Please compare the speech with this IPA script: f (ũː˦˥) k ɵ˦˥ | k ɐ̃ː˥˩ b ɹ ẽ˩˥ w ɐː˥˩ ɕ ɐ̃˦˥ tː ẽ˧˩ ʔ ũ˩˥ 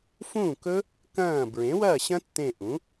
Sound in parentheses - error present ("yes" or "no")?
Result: yes